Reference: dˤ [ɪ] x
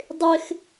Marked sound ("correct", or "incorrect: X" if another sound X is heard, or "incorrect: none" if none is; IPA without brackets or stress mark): correct